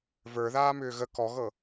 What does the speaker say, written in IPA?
və˞ðaːmʏː ɣə kɔɣɤ

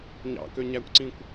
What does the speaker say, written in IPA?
ɲɑ̰køɲækʷǀĩkʷ

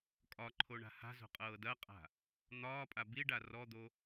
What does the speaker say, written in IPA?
kʼɒǃʰoɳa̤ ha̤zo̤qʼɤː dɐqʼa̤ | n̪ɒːpʼa biɖa rɔd̪o

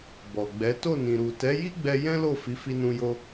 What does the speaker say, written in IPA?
bɔ˨ɡ͡bɛ˨˦ to˦˨nĩ˨ɾu˨ tɛ˨˦ji˦ɡ͡bɛ˧ jɛ̃˦lo˦˨ fi˨˦fi˧nũ˧jo˧

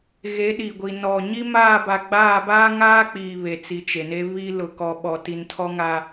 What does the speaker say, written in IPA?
ɣe˨˦ɗi˨ɡʷi˨ nɔ˨ ɲi˦maː˦˨ba˨ ɡ͡baː˦˨baː˦ŋaː˦k͡piː˨ βe˨t͡si˨t͡ʃe˨ne˦ βi˦ lʊ˨kɔ˨ ɓɔ˨ti˨n tʰɔ˦ŋa˦

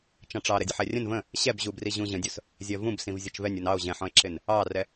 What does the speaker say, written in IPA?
t͡ʃɑ̃ʈ͡ʂɑɾɛ dʲʌħɛrʲə̃n və̃ | ɕɛbʑubri ʑũʑə̃dʲʊs | zʲɜvũbsĩv zʲʌt͡ʃvɛnʲ unɑo̯ ʑɛ̃ħɔ̃e̯ǁɪn | ɑrɛ

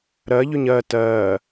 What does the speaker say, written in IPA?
ɾɜ ʎʏɲɜ tɜː

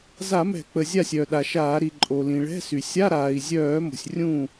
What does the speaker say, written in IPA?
za˧˩˧mɛ̤˧˩˧k͡pə˩ zʲa˥˩sʲœ˩ɗa˩ʃaː˧˩˧ ɾi˩ǃʼo˩lĩ˩ ɭɛ̤˧˥˧sy˩ sʲa˧˥˧ɾaː˩i̯zʲœː˧˩˧ mo̤˩sʲ rʲũː˥˩

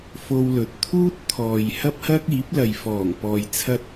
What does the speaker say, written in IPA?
fo˧wlɵ˨t̚t̪ʰuː˥t̚ t̪ʰɔː˨jhɐ˥p̚hɐ˥k̚iː˨˥p̚ lɐ˨jfɔː˨˩ŋpɔː˨j t͡sʰɐ˥t̚

